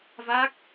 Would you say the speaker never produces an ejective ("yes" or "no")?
yes